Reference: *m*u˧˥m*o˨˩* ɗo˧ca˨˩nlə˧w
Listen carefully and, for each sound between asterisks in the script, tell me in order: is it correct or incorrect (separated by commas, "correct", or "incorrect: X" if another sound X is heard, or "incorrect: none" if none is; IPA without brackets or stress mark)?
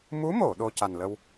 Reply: correct, incorrect: o˨˩˨